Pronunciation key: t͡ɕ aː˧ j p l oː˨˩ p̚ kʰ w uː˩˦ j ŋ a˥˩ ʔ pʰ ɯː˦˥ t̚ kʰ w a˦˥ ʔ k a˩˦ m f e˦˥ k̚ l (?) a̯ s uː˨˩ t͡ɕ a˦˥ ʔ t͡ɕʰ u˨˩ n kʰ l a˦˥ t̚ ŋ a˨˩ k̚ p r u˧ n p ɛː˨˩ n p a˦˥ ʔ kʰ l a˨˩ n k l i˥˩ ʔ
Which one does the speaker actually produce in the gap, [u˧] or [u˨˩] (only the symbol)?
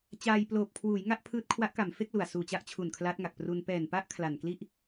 u˨˩